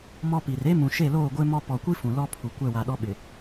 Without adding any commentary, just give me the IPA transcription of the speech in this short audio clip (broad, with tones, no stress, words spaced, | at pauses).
mɔ˦pi˨r e˦mũ˨ ʃe˦˨loː˦˨ɡʷe˦mɔ˦ pɔ˨kʷi˦ fũ˨lɔ˦pʰu˨ kʷɛ˦˨wa˨ɗɔ˦ɓɪ˨